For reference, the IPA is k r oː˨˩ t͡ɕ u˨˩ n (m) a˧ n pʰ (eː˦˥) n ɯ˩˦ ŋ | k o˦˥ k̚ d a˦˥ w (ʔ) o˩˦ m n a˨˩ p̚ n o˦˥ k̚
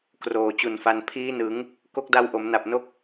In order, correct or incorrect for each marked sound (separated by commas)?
incorrect, incorrect, correct